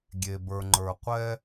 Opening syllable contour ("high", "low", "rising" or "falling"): low